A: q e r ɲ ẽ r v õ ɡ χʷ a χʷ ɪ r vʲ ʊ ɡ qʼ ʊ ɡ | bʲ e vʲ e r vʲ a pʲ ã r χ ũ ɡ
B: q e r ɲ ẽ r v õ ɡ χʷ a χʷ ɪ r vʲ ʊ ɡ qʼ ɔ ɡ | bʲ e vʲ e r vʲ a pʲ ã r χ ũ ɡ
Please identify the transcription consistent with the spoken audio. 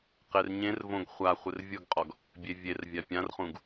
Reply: B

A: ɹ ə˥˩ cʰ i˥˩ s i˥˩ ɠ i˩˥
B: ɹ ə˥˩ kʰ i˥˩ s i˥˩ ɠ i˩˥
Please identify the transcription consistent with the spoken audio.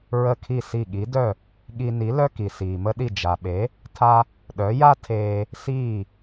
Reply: B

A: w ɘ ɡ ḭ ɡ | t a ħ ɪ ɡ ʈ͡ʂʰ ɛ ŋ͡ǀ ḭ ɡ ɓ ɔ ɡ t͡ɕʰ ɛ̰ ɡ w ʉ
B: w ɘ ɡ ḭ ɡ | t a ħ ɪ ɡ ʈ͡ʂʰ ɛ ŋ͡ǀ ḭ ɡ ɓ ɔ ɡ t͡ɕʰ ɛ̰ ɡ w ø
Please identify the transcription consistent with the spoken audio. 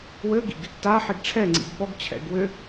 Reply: B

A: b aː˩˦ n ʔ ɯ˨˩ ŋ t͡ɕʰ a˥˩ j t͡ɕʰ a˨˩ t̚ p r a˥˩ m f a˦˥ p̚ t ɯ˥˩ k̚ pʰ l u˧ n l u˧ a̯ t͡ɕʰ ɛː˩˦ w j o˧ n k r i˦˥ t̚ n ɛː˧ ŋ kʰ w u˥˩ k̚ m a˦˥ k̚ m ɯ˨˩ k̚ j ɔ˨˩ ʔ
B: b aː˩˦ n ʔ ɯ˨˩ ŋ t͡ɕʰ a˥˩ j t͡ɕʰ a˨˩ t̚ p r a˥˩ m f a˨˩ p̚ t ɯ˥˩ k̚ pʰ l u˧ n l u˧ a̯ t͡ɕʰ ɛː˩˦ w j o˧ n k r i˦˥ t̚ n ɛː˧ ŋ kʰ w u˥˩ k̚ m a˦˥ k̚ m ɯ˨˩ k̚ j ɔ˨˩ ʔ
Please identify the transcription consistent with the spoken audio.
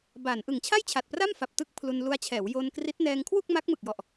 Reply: B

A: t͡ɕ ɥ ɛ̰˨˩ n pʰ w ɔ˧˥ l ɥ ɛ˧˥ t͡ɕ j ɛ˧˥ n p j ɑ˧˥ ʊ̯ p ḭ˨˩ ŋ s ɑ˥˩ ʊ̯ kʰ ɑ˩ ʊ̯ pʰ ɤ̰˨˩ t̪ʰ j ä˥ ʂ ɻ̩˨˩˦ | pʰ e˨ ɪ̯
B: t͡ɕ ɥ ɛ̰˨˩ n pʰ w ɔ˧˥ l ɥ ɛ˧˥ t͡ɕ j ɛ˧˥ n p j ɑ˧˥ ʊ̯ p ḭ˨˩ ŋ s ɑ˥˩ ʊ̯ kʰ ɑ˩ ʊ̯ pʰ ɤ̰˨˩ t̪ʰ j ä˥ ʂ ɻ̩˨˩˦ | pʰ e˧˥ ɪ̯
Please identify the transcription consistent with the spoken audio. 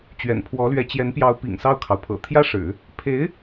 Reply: B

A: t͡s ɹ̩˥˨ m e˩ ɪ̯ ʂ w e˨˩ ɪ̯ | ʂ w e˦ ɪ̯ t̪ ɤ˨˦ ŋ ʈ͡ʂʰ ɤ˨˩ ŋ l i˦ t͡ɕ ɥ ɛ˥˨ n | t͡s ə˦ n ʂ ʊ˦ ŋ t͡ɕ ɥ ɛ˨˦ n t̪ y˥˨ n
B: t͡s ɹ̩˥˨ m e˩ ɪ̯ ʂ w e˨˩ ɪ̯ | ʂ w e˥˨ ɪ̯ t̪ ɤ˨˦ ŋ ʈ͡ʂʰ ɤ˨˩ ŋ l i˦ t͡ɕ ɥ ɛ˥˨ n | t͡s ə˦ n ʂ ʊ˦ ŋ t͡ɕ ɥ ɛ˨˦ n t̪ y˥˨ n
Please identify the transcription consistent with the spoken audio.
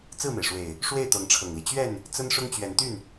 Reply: B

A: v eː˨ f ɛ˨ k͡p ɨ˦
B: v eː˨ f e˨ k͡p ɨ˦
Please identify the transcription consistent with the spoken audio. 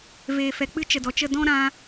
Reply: A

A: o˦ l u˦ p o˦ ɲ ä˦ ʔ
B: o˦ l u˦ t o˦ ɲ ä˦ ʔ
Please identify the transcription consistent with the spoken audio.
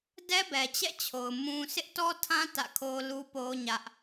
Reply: A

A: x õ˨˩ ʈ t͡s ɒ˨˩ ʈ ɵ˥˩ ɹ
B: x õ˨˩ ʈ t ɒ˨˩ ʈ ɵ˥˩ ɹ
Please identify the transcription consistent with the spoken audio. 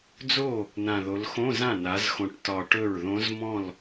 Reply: B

